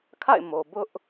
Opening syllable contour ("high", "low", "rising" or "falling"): falling